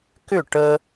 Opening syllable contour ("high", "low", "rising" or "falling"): falling